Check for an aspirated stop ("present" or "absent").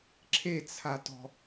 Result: present